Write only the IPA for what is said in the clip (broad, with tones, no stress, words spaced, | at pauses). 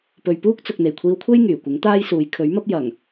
pɵ˨ɥpuː˥k̚t͡sʊ˨k̚ n̪e˨˩jkʷʰiː˧wkʷʰe˥j ŋyː˨˩kʷɪ˨˥ŋt̪aː˥jsuː˨˧j kʰɵ˨˥ɥmɐ˥p̚ jɐ˨˩ŋ